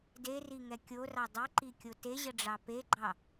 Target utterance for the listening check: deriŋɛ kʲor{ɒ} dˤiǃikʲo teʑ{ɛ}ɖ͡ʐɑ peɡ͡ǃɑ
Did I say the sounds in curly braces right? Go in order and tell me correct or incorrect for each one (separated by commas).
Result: incorrect, incorrect